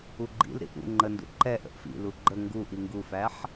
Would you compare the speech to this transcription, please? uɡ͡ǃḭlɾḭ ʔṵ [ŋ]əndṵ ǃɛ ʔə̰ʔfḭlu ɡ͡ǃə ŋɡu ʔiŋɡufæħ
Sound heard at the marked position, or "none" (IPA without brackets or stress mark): ŋ͡ǃ